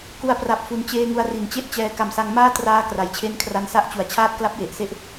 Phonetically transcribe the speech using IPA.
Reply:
k u˧ a̯ p r a˨˩ p̚ f u˩˦ n t͡ɕ eː˧ ŋ u˧ a̯ r i˨˩ n t͡ɕ e˥˩ ʔ t͡ɕ ɛː˧ k a˨˩ m s a˧ ŋ m aː˥˩ t r aː˧ k r a˩˦ j t͡ɕʰ e˦˥ n kʰ r a˧ n s a˥˩ ʔ t͡ɕ u˨˩ a̯ t͡ɕʰ aː˥˩ t̚ k l a˦˥ p̚ j e˨˩ ʔ s e˦˥ ʔ

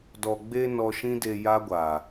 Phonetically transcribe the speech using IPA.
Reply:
d ɔ˨ ɡ͡b e˧ n ɔ˧ ʃ ĩ˦ d e˧ j a˦ ɡʷ a˨

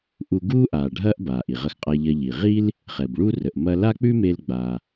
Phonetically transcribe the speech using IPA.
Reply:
ʔ u˧ ɡ uː˥ ʔ aː˩ ɖʱ ɐː˥ ʔ b aː˩ ʔ i˩ ʁ ɐ˧ x qʼ a˧ ʎ ɐ˧ ʎ i˩ ʁ i˥ l | χ ɛ˩ b ɭ u˥ r ə˩ ʔ m ɐ˧ l a˥ k͡p ʉ˥ m e˧ l ɡ͡b a˩

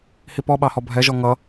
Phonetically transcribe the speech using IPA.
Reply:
h i p ɔ ɓ ɑ h ɔ bʱ ɛ ʒ ɔ ŋ ʌ

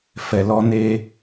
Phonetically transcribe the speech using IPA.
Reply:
f ɛ˨ l ɔ˧ n e˧

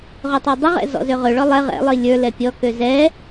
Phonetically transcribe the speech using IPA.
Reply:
ʁ ɵ tˤ ɛ dˤ ɪ ʁ ɛ̰ z ɔ̰ z ø ʁ ɵ ɭ ɔ lˠ ɛ ʁ ɛ̰ lˠ i lʲ ə˞ l ɛ pʲ ɔ k ø z ɛ

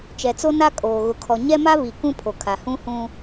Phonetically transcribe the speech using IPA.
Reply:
t͡ʃ ɛ˨ t͡s o˦ n a˦ kʼ oː˨ ɣ ʊ˨ kʰ ɔ˨ ɲ ɛ˦ m a˦ β i˨ k ũ˦ pʰ o˨ kʰ a˨ h ũ˦ h ũ˦

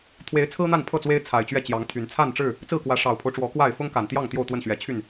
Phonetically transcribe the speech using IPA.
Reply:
t̪ʰ w e˨˦ ɪ̯ t͡sʰ ɹ̩˦ n̪ a˥˨ n pʰ ɤ˥˨ t͡s w e˦ ɪ̯ t͡sʰ a˨˩ ɪ̯ t͡ɕ ɥ ɛ˥˨ t͡ɕ j ɑ˨˦ ŋ t̪ʰ y˨˩ n t͡sʰ a˥˨ n ʈ͡ʂ ɻ̩˥˨ | t͡s ɹ̩˥˨ k w ä˨˦ ʂ ɑ˨˩ ʊ̯ pʰ o˦ ʊ̯ ʈ͡ʂ w ɔ˨˦ k w a˥˨ ɪ̯ f ʊ˦ ŋ k a˨˩ n t̪ j ɑ˥˨ ŋ t̪ j o˥˨ ʊ̯ t̪ w ə˥˨ n ɕ ɥ ɛ˨˦ t͡ɕʰ y˥˨ n

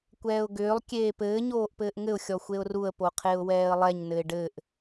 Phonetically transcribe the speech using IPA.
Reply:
kʷ ɛː ʊ̯ ɡ ʏː lˠ kʲ eː p ɘː ɲ oː ʔ p ɘː ʔ ŋ ɘ ʊ̯ xʲ ɔ xʷ e ʊ̯ r u ə̯ p o qʰ e ʊ̯ w ɛː ə̯ lˠ ɛ ɲ n ɘ ɪ̯ ɖ ɘ ʔ

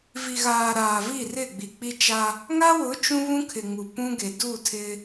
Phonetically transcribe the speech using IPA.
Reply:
v i˨ ɣ aː˨ ɾ aː˨ v i˦˨ r ɪ˦˨ ɡ͡b i˨ k͡p i˦ t͡ʃ a˦ | ŋ a˦ w ʊ˨˦ t͡ʃ ũ˦ β ũ˦ kʰ ɪ˨ ŋ u˨ p ũ˦ ɡ e˨ d u˦˨ tʰ ɪ˦

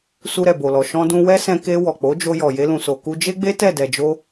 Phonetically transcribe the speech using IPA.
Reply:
s u˧ ɾ ɛ˨ b o˨ l ɔ˨ ʃ ɔ̃˧ d ũ˧ w ɛ˦ s ɛ̃˧ k e˧ w ɔ˨ k͡p o˨˦ d͡ʒ o˧ j ɔ˨ j e˧ l ũ˨ s o˨ k u˧ d͡ʒ e˦ ɡ͡b e˦ t ɛ˦˨ d ɛ˨ d͡ʒ o˧

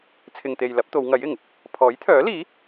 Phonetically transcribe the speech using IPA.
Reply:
t͡sʰ ɪ˨ ŋ t̪ e˨ j l ɐ˨˥ p̚ t̪ o˨˧ w ŋ ɐ˨˥ j ɪ˨˩ ŋ | pʰ ɔː˨˥ j t̪ʰ œː˨˥ l iː˨˥

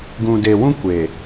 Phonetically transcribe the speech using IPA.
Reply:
ɡ ũ˨ d e˨ w ũ˦ kʷ e˨

